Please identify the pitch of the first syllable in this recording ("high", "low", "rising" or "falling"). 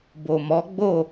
low